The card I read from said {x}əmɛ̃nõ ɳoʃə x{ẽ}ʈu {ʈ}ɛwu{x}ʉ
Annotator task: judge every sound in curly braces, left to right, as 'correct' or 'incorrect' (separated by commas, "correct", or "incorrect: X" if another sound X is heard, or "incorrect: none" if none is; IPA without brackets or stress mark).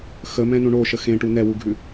correct, correct, incorrect: n, incorrect: ɡʱ